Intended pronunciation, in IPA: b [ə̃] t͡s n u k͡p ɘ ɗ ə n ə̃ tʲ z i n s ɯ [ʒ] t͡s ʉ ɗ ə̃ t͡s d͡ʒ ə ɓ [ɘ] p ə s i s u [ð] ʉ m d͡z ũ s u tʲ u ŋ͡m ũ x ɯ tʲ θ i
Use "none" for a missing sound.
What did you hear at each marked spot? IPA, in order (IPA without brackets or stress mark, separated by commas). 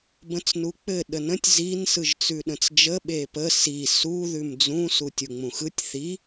ə̃, ʒ, e, ð